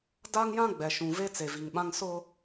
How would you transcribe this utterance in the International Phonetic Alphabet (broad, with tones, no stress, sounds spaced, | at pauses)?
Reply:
d a˦ ŋ j ã˦ ɡ͡b ɛ˨ ʃ ũ˨ v e˦ t͡s e˨ v i˨ ŋ ɓ ã˦ ŋ s ʊ˦